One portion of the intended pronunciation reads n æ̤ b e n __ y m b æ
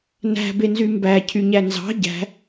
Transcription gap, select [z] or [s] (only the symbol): z